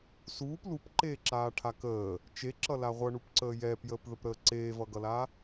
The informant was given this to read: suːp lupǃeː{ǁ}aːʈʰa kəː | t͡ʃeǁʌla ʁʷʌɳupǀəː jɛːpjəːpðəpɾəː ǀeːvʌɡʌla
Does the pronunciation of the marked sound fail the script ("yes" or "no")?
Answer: no